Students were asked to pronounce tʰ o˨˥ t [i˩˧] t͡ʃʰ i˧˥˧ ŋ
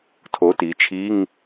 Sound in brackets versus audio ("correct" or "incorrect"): correct